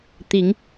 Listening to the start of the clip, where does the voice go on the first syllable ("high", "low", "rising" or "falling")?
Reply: rising